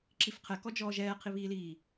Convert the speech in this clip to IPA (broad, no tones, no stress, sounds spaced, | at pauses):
ǁ i f qʰ ɛ k ɔ d͡ʒ ɔː ʒ ɛː qʰ i β iː l iː